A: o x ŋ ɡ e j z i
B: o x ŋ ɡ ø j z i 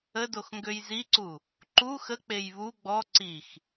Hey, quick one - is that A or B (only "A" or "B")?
B